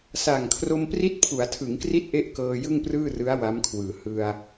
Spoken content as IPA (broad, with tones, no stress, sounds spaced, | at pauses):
s a˨˩ ŋ kʰ r o˧ m p r i˦˥ t̚ pʰ u˩˦ a̯ tʰ ɯ˩˦ ŋ k r i˦˥ t̚ ʔ e˥˩ ʔ k ɤː˧ j ɯ˥˩ ŋ p r ɯː˥˩ r ɯ˦˥ a̯ w a˦˥ m kʰ w ɯː˨˩ h ɯ˧ a̯